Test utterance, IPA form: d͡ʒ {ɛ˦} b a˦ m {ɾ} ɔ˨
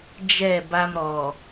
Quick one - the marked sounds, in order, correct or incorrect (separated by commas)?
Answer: incorrect, correct